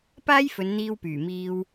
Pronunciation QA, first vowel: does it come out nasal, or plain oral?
oral